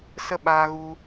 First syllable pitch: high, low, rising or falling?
high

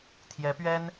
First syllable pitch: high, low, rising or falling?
rising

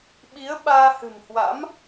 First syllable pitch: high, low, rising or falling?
rising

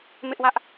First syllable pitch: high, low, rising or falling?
high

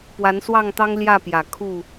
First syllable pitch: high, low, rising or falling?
rising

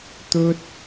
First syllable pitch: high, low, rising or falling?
high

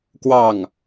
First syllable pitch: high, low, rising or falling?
falling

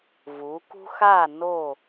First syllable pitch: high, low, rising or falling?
rising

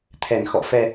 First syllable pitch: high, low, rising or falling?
low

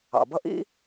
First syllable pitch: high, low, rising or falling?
low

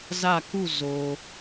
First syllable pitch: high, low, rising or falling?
falling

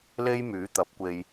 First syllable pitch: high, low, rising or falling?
high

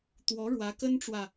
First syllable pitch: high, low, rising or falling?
rising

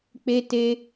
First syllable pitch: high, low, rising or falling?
high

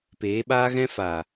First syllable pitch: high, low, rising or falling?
rising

